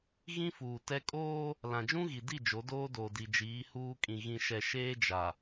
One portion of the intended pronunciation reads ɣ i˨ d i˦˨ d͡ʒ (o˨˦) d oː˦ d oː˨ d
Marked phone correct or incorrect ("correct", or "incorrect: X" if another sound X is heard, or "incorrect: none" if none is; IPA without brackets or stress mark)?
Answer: correct